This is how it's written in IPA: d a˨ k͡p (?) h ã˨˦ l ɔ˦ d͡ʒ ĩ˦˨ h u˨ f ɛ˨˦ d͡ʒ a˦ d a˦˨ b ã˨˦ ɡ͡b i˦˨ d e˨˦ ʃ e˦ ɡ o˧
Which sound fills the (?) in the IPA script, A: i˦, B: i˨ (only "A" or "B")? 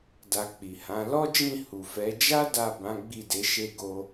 B